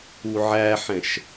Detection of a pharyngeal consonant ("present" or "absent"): present